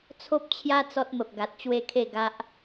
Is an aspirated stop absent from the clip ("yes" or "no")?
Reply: no